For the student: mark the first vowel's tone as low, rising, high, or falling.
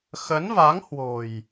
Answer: rising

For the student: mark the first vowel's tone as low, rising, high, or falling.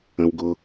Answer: low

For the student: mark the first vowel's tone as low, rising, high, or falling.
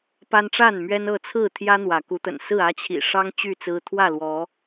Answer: high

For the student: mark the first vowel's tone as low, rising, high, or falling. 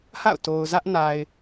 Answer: falling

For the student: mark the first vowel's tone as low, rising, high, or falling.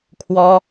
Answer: high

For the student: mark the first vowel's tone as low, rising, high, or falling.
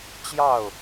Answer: falling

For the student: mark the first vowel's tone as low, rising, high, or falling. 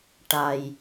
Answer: low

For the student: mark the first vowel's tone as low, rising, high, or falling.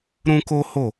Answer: high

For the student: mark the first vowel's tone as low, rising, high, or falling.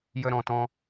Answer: high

